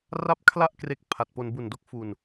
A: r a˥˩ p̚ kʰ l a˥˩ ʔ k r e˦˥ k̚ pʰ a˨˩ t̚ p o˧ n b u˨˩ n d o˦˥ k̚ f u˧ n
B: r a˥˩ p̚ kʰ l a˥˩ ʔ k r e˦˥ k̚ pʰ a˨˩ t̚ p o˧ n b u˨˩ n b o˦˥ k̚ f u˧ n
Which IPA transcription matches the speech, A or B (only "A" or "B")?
A